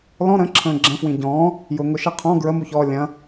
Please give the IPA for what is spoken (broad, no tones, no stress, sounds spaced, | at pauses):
l ɔ̃ ɾ ə̃ ǁʰ ə̃ː ɡ͡ǁ ə̃ f w ĩ ɟ ɔ̃ː | j ʊ ŋ ʊ ʃ ɐ qʰ ɔ̃ ɡ ɹ ə m u ç ɔː lʲ ɐ̃